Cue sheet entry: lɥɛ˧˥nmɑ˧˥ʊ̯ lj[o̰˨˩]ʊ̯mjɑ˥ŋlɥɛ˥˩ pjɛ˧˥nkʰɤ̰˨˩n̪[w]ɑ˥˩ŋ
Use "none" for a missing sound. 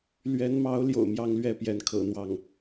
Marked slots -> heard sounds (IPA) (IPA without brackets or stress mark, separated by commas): o̰˨˩, w